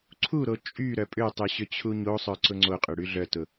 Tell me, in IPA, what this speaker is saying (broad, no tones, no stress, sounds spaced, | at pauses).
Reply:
ǀʰ u ɾ o t͡ʃʼ y ɾ œ pʼ ʏ tˤ y ɕ ʏ t͡ɕʰ u ɲ o sˤ œ ǀ ʊ ŋ͡ǀ o qʼ ʏ ɽ y ɮ œ t ʊ